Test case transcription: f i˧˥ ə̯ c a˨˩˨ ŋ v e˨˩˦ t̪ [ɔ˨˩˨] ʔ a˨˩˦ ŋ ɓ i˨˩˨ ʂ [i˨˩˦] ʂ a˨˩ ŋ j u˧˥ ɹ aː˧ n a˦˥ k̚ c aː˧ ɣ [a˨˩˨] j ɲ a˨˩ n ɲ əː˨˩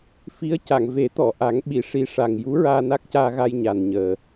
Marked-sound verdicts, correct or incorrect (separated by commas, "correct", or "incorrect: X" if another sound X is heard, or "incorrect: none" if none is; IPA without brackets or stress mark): correct, correct, incorrect: a˧